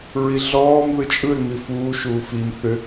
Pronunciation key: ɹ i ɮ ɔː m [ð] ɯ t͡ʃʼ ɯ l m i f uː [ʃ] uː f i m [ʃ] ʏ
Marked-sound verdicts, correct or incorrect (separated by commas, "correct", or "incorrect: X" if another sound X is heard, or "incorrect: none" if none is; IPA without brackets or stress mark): correct, correct, incorrect: θ